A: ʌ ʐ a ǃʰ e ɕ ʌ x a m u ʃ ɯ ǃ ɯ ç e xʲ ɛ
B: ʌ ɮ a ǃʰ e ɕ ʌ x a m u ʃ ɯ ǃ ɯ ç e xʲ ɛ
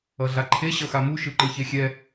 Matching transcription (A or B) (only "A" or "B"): B